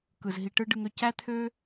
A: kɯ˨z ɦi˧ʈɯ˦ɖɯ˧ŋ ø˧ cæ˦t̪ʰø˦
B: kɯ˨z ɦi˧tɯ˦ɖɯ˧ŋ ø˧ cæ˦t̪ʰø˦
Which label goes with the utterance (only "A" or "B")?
A